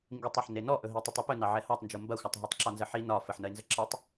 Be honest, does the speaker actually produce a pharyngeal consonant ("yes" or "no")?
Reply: yes